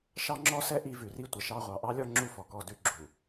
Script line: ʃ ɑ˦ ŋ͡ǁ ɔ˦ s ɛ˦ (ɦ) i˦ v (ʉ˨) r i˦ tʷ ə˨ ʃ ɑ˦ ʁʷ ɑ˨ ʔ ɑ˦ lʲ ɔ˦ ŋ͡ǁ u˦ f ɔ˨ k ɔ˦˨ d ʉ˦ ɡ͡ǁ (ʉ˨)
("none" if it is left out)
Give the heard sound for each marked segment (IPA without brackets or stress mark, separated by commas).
ʔ, ʉ˨, u˨